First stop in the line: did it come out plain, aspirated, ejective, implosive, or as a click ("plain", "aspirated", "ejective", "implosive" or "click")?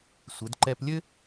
plain